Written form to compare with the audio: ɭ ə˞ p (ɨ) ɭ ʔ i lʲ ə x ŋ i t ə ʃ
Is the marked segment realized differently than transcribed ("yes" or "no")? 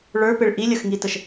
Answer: yes